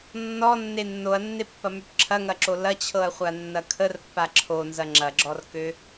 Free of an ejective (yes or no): yes